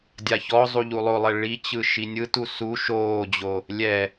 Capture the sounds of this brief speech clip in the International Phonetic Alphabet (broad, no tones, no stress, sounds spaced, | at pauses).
dʲ a ç ɔ zˤ u ʎ u lˠ o lˠ ɛ ɭ i t͡ɕ ɯ ʃ i nʲ ɯ t u s u ʃ oː d͡ʑ o | lʲ ɛ